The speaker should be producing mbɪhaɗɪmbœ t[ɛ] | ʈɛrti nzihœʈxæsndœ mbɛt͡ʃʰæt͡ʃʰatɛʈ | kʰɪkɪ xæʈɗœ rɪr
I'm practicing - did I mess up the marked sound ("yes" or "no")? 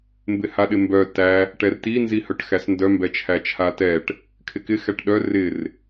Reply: yes